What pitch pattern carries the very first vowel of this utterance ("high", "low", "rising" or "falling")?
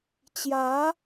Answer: rising